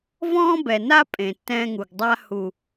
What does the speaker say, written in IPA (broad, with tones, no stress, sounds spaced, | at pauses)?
v ɔ̃ː˦ b ɛ˨ n a˦ pʼ ẽ˨ tː ɛ̃ː˦ ŋ u˨ ɡ dˤ a˦ h u˨